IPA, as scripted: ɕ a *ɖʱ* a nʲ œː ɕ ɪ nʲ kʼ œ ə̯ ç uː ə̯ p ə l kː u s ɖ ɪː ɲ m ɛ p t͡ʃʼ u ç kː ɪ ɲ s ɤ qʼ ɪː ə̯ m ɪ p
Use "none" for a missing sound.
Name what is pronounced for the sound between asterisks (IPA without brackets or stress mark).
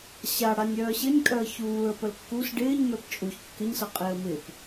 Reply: ɽ